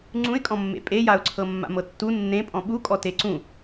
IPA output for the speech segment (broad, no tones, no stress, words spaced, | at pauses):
ŋ͡ǀũɪ̯kʼɔ̃mːḛ pʼejaʊ̯ǀʰɤ mːa̰mɤtːu nːẽpʼɔ̃ ɓukʼɔ teǀũ